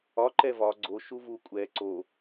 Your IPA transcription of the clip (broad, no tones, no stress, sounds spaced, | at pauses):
ɒ ǃ ɛ v ɒ ɡ͡ǀ o ʃ u v u kʷʼ ɛ ǀ o